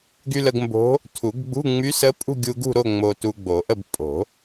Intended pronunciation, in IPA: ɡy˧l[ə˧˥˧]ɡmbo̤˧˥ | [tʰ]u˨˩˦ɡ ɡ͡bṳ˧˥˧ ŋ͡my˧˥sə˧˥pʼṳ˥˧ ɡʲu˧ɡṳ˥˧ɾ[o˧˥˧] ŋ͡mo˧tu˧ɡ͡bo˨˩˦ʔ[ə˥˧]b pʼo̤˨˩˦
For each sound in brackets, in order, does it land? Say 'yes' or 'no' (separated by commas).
no, yes, no, yes